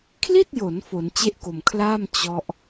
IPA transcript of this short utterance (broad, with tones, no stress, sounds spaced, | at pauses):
kʰ l i˥˩ t̚ j o˩˦ n f o˩˦ n t͡ɕ e˥˩ ʔ k o˨˩ m kʰ l aː˥˩ m t͡ɕ ɔ˦˥ ʔ